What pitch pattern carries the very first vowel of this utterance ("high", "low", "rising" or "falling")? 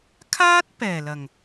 high